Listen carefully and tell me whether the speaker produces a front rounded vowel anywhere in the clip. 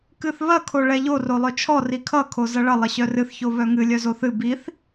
yes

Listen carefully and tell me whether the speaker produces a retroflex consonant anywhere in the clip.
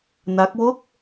no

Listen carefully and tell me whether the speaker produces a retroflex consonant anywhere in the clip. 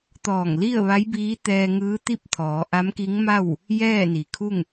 no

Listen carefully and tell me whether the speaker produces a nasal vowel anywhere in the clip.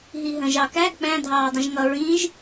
yes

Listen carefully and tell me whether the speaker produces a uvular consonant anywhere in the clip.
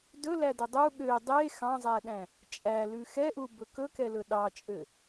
no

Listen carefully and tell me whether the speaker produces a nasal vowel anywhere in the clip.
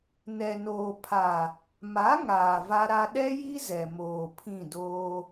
yes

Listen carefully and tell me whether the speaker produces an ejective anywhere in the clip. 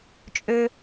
yes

